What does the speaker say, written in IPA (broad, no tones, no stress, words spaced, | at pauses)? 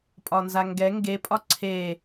pʼɒnzaŋɡɛ ŋɡe pʼɒǀʰe